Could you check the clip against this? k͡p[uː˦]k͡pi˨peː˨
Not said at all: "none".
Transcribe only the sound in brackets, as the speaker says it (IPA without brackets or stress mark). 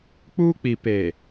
uː˦